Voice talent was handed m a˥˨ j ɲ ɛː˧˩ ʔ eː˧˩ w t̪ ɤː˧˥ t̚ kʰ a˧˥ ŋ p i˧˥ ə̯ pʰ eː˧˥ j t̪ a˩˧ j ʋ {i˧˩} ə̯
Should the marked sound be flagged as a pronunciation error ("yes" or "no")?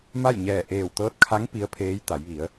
yes